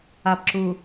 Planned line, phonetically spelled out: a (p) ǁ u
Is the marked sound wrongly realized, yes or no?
no